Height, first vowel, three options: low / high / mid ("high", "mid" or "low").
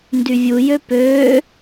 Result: high